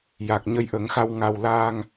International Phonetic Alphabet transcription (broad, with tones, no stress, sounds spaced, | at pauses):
j a˨˩ k̚ ɲ ə˧ j ʔ ə˨˩˦ ŋ x a˧ w ŋ a˧ w l aː˧ ŋ